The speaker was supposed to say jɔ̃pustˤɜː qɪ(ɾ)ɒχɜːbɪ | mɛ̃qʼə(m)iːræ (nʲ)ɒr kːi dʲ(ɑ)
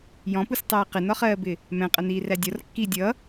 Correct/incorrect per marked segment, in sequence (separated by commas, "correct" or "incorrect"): incorrect, incorrect, incorrect, incorrect